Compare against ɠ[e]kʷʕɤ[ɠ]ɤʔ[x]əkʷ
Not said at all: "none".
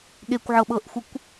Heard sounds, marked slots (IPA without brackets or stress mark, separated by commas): e, ɓ, xʷ